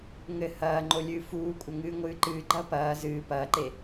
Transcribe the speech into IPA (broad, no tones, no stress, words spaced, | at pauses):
ŋɘ hɐːŋ͡ǃolʲɨː fuːkʷʼɐŋɨː ŋʷɨːǃɨː ɡ͡ǃɐpɐː zɨː pɐːǃe